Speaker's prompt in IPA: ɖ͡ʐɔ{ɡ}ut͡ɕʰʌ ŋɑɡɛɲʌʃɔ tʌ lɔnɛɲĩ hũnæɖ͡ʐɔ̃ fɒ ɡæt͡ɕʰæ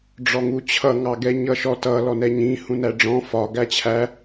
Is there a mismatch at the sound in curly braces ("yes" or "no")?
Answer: yes